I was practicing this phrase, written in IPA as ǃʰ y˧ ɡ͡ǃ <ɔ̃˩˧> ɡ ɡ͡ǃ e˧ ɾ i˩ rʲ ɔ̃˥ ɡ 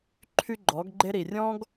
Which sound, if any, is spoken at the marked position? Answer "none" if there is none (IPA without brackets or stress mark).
ɔ˩˧